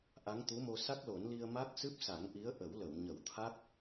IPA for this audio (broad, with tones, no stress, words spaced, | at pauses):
ʔa˧˥ŋt̪u˧˥mo˧ sa˦˥k̚lo˨˩˦nli˧ə̯ ma˦˥k̚sɨ˦˥p̚sa˨˩˦ŋʔi˧˥ə̯ ʔə˨˩˦wlə˨˩˨w ɲə˨˩˦wt̪ʰa˦˥k̚